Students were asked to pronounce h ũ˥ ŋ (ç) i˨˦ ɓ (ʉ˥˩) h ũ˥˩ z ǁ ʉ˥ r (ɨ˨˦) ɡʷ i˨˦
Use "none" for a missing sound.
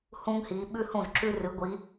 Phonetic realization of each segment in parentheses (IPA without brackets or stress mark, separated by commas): h, ʉ˥, ɨ˨˦